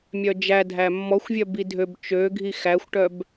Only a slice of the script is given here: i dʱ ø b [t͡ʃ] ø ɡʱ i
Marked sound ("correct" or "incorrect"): correct